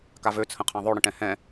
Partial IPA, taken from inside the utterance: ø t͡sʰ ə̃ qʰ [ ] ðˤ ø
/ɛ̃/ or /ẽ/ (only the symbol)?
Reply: ɛ̃